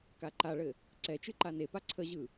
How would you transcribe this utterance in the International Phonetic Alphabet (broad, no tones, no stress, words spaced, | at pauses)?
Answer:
kaǃaɭɘ | ǀɛ t͡ʃɯǃanepa ǀʰəʑɯ